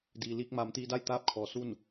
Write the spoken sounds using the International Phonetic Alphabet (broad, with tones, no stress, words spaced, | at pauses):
diː˩liː˧k̚ maː˩˧mt̪iː˧da˥˨j t̪aː˥˨p̚kʰɔː˩˧su˥˨n